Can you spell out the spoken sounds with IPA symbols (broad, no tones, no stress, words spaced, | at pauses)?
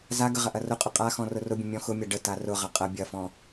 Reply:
zaɡə ʁɐʔɐrʊqʼʊ qʼaxɔ̃ rʊrʊbʲə̃ mʲɔ̃xʊmʲa ɖə tarʊʁɐ qʼɐ bʲɐfɔ̃